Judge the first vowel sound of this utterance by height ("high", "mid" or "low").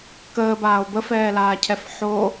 mid